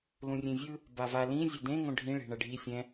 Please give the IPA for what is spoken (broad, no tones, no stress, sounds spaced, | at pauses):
l ũ rʲ ẽ vʲ ɯ | b a v a l ĩ zʲ e d ẽ ŋ õ ɖʱ ĩ ɭ e̤ ɳ ʌ ɖʱ i sʲ ɛ̃